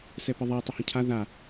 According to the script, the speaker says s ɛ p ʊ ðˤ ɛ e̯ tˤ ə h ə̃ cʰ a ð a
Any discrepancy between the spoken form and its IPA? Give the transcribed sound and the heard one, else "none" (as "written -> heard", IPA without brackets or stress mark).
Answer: ʊ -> ə